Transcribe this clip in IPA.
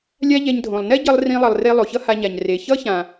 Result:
lʲ a˦ ʎ ɛ˧ ɲ dʱ õ˨ lˠ n ɛ˦ ɟ ʌ˧ lˠ r ĩ˧ lˠ ʌ˨ lˠ r e˧ lˠ o˨ ç ʌ˦ h a˧ ɲ a˨ ɲ r e˨ ç ʌ˦ ç ã˨

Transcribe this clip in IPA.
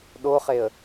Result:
ɗ o χ e ə̯

